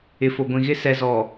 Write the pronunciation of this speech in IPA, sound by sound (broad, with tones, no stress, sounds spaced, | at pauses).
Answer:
ɪ˨ f o˨ ɡʷ ĩ˨ ɣ ɪ˦ s ɛ˨ z ɔ˨